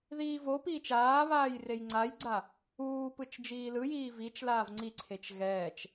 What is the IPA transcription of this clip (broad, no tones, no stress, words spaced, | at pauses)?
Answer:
ðiːvopiːt͡ʃ aːβaːj rejŋ͡ǀajɡ͡ǀa | uːpɯt͡ʃ d͡ʒiːlɯjiː vit͡ʃlaːv ŋ͡ǀiǀʰet͡ʃ ɣɛːt͡ʃ